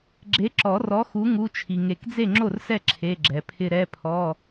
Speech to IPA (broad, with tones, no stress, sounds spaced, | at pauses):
ɡ͡ǁ e˨˥ ǁ ɔ˨˩˦ r ɔ˨˥ x u˨˥ ŋ u˧˥˧ t͡ʃʰ i˨ ŋ e˨˩˦ k d͡z e˥˩ ŋ͡ǁ o˥˩ r s ɛ˥˩ ǁʰ e˧˥˧ ɡ͡ǁ ɛ˨ pʰ ɪ˥˧ ɾ ɛ˧˥˧ pʰ ɔ˧˥˧